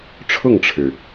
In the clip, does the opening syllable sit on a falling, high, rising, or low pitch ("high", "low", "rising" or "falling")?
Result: falling